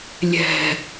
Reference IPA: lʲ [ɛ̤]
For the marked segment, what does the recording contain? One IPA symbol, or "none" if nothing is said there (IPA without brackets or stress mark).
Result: ɛ̤